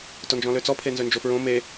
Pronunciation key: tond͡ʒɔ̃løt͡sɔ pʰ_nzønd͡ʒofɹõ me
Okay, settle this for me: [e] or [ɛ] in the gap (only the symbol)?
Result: e